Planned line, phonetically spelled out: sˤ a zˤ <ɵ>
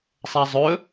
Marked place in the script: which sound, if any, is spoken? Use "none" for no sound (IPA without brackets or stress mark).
ɵ